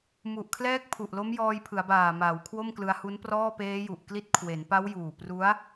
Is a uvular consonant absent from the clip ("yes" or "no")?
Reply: yes